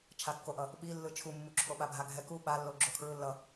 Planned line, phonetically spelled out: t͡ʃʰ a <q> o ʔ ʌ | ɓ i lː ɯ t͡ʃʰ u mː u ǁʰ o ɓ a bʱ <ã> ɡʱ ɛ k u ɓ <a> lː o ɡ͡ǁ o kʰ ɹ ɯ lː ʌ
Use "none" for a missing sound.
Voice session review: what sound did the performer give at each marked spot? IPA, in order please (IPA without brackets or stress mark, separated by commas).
kː, a, a